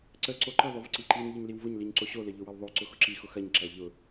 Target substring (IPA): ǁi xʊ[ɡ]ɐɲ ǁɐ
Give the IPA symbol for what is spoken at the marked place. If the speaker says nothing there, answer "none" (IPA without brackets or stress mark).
x